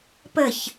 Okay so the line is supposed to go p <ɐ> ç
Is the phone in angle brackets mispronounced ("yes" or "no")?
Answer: yes